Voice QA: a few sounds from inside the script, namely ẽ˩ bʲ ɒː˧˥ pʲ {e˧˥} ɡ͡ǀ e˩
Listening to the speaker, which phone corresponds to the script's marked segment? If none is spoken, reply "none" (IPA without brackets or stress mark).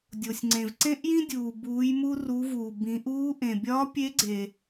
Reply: e˧˥